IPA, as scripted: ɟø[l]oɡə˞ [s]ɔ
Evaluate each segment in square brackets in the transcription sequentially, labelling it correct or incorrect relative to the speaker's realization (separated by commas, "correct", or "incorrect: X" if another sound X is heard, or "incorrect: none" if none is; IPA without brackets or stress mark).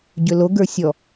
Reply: correct, incorrect: sʲ